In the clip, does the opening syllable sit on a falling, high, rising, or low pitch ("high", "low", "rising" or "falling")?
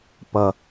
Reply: high